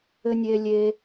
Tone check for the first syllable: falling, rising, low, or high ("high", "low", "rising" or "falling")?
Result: high